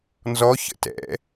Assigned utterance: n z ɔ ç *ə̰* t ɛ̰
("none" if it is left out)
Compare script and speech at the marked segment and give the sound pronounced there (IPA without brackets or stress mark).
ə̰